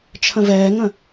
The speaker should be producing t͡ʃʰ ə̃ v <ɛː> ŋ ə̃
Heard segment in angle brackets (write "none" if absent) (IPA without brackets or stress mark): ɛː